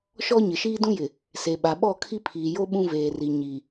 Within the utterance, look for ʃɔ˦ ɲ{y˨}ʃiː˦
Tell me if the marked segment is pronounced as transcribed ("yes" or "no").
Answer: no